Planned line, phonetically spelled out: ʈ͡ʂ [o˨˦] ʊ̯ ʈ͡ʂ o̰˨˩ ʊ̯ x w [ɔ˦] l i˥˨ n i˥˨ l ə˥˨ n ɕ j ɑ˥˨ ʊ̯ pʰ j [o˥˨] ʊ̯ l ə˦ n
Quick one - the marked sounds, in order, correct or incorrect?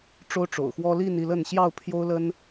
incorrect: o˦, correct, incorrect: o˦

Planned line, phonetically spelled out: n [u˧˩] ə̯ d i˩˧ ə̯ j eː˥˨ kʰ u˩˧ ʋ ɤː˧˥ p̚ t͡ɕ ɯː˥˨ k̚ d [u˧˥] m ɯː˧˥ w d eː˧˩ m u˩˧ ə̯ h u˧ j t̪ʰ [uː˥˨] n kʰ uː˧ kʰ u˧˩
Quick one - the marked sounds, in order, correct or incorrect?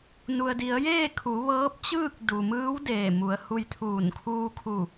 incorrect: u˩, incorrect: u˩, incorrect: uː˧˩

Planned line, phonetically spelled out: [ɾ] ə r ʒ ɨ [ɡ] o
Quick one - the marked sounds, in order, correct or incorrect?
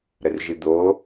correct, incorrect: d̪

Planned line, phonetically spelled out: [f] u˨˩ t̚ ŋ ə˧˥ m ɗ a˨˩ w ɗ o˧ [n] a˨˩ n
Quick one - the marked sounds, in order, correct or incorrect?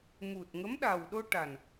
incorrect: m, incorrect: ʈ

